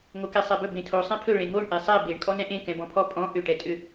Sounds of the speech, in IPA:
ŋokesˤebɵ bẽtʰo sˤẽpʰɵ ɭẽŋoɳ ʔesˤɛ beɳ kʼɔnɛ̃ʔẽ kɛ̃bɔ̃pʰɔ pʼɔ̃ ʔʏ ʈɛtʼʏ

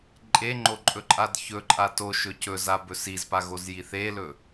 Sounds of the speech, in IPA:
ǃʼeŋ͡ǃoǃʼɵǃʼad çɵǃʼa toʃɵ cɵzabɵ sizpaɣozji θelɵ

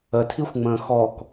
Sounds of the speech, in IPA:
ətʰixʷŋ͡mə̃ː xɔk

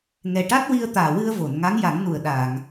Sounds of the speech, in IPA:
ŋɛ˨˩ʈa˦˥t̚ wi˧ə̯t̪aː˨˩wɨ˧ə̯vo˨˩˨n ŋa˧˥ŋja˨˩˦ŋnu˨˩ə̯ ɗaː˨˩˨ŋ

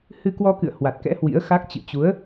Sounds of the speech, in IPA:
hɨ˧kwɔ˧kɨ̰˧˨ə̯ hwa˨˩t̚kɛ̰˧˥ hwḭ˧˥ə̯xa˦˥k̚ t͡ɕɨ̰˧˨t͡ɕu˨˦ə̯

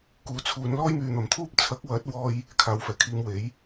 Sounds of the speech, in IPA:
kuː˨˥t͡sʰuː˨˧n lɔː˥jmyː˨n̪ɐ˨˩mt̪ʰuː˥p̚ t͡sʰɐ˨˥k̚wɐ˨˥t̚wɔː˧j | kʰaː˨˧wfɛː˨˩kʰiː˧mwe˨˥j

